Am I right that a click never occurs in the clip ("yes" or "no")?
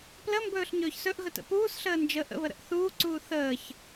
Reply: no